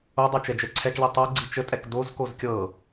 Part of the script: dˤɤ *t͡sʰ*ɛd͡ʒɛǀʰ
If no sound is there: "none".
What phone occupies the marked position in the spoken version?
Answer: t͡ʃ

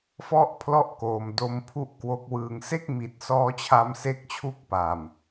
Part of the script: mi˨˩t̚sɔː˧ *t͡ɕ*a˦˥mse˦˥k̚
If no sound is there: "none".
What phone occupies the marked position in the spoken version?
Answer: t͡ɕʰ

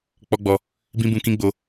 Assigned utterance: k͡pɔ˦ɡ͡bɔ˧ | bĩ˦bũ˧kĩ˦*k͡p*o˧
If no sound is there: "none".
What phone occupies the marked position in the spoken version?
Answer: ɡ͡b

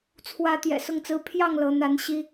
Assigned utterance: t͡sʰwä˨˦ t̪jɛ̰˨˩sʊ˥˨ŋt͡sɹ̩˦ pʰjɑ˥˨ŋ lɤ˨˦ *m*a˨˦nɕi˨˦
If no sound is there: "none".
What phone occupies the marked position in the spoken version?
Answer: n̪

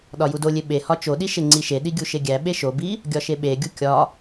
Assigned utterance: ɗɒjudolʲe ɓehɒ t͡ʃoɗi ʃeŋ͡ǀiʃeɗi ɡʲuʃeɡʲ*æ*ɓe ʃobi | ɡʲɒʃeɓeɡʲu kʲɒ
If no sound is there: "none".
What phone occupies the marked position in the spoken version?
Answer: æ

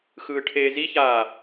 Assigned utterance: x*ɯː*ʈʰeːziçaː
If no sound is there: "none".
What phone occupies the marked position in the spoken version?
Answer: ɯː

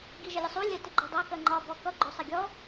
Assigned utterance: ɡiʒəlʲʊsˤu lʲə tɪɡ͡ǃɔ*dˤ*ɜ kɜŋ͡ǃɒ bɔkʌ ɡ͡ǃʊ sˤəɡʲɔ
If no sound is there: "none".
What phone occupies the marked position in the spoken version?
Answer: dˤ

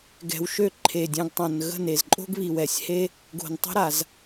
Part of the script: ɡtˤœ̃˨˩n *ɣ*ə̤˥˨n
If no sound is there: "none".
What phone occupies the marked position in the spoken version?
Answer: ɣ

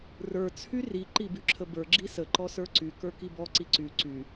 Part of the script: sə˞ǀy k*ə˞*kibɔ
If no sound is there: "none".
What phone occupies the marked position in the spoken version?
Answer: ə˞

